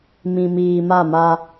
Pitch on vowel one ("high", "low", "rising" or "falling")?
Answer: low